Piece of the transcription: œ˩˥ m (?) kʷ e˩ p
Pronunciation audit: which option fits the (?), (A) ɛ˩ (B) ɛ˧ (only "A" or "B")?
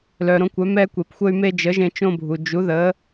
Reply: B